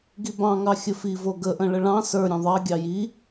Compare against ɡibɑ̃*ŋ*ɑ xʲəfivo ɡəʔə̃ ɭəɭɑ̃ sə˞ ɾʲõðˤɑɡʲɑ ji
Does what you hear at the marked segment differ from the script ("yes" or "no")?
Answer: no